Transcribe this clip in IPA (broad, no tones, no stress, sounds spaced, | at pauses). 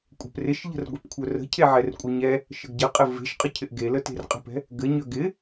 kʷʼ ɛ̤ p r ɪ ʃ ʎ ə̤ r ɡʷ e p kʷʰ œ r ə̤ cʰ e ʕ ɛ r kʷʼ ɪ ɲ ɛ | ʃ ə ɡ ɟ ə qʼ ɘ v e̤ ʃ qʼ ə cʰ ɪ ʔ ɡ e l ə t e̤ r qʼ ə̤ p ɛ̤ | ɡ ɘ ɲ œ ɡ ɪ